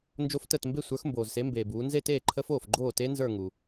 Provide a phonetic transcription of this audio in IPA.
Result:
n d͡ʒ o˦˥ f t əː˥˧ t m b e˥˧ sʷ ə˞˨˦ x m b oː˨ z s e˨˦ m b eː˨ b uː˨˦ n z e˥˧ t eː˥˩ ǃʰ ə˦˥ f oː˥˩ f ɡ͡ǃ oː˥˩ t e˦˥ n z ə˞˥˧ ŋ u˨

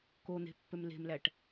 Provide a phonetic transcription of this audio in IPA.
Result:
k o n̪ e̤ pː ø m l e̤ m l æ ʈ

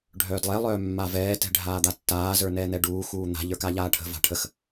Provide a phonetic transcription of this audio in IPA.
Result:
ɖʱ œː d lˠ ɛ lˠ œː mː a v ɛː t ɛ̤ ɖʱ aː d̪ a tː aː z ə˞ n ɛː n̪ ɛ ɖ uː x uː n̪ a̤ ʎ ə˞ k a ʎ aː ʈʰ ə̤ v a̤ ʈʰ ə x

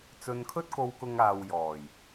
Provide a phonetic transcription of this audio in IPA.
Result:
t͡s ɵ˨ n kʰ ɵ˧ t̚ k o˨ w k ʊ˨ ŋ aː˨ w j ɔː˨˩ j

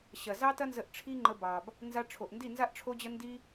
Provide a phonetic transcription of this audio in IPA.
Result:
ɕ ɐ˨ z ɑ˦ t ɐ˦ n z ə˧ ʔ ʈ͡ʂʰ i˦ ŋ͡ǃ ə˧ b ɑ˨ b | n z a˧ ʈ͡ʂʰ o˨ ʔ n d i˦˨ n z a˦ ʔ ʈ͡ʂʰ o˦ d͡ʑ ə˦ n d i˦

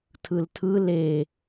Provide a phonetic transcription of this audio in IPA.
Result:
tʰ ɯ l tʰ ɯ l e

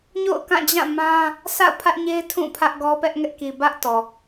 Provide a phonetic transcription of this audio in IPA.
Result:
ɲ o̰˦˨ ʊ̯ k ã˦˨ d͡ʑ ã˦˨ m ã˦ | sʰ a̰˦˨ ʊ̯ pʰ ä˦ ʔ ɲ e˦ ɪ̯ tʰ ũ˦˨ pʰ ä˦ ʔ ɡ ɔ˦ p ɛ˦ ʔ ŋ ɛ˦ ʔ k i˨ b ä˦ ʔ t ɔ˨

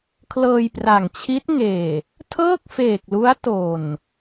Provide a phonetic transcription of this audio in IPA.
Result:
kʰ l ɤː˧ j p r a˨˩ ŋ t͡ɕʰ i˦˥ t̚ ŋ eː˨˩ | tʰ ɤː˥˩ k̚ f eː˨˩ k̚ l u˦˥ a̯ t o˨˩ n

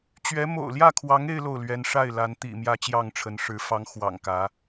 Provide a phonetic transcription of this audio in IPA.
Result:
t͡ɕ ɥ ɛ˧˥ m o̰˨˩ ʊ̯ l j ä˥˩ kʰ w ɑ˧˥ ŋ e˥ ɪ̯ l o˥˩ ʊ̯ l ɥ ɛ˧˥ n ʂ a˥˩ ɪ̯ l a˧˥ n t̪ ḭ˨˩ m j ä˥ t͡ɕ j ɑ˥˩ ŋ ʈ͡ʂʰ ə˧˥ n ʂ ɻ̩˧˥ f ɑ˧˥ ŋ x w ɑ̰˨˩ ŋ k ä˧˥

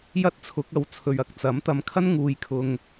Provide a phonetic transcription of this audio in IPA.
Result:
j ɐ˥ t̚ t͡sʰ ʊ˨˥ k̚ ɐ˨ w t͡sʰ ɵ˨ ɥ ɐ˨ k̚ t͡s ɐ˨˥ m t̪ ɐ˨ m kʰ ɐ˥ n ŋ uː˨ j kʰ ʊ˨ ŋ

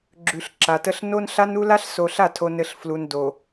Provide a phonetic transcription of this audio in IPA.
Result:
ɡ͡ǁ ʉ˨ ɬ ǁ a˨ t ə˦ ɬ n o˦ n ɬ a˦ n u˦ l a˦ ɬ s o˨ ɬ a˦˨ tʰ o˨ n ɘ˨ ɬ f l u˨ n d o˨

